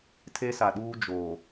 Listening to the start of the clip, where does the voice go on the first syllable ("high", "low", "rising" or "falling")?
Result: high